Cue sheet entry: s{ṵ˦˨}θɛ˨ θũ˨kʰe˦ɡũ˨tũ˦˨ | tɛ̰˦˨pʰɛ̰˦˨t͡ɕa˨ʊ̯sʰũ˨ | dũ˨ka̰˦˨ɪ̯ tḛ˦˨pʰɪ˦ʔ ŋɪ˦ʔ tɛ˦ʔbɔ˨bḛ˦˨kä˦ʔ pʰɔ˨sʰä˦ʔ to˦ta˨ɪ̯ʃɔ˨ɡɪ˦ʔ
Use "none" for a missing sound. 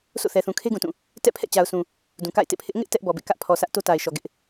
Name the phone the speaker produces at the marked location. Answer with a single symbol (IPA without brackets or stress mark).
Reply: o̰˦˨